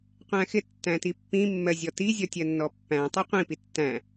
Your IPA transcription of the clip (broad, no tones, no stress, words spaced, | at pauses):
qʷæ̃xɪ tːæ̃tipːĩ mːɜzʲɔti zʲɔtʲɜnːɔpːæ̃ tˤiqʷĩ pitːæ̃